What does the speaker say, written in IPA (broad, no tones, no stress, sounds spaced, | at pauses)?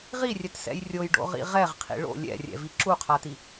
ʁ i rʲ ɛ t s ɛ̰ j rʲ o j ɖ o̰ ʁ ḭ ʁ ɛ ʁ qʰ ḭ ɭ o̰ lʲ ɛ̰ rʲ ɛ̰ v i ǁ u qʰ a t i